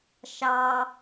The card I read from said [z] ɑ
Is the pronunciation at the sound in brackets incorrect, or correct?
incorrect